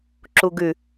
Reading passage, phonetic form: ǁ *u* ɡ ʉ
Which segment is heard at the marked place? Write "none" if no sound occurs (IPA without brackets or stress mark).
u